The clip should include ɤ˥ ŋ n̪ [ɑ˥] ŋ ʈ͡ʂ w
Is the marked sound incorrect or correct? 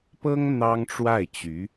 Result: correct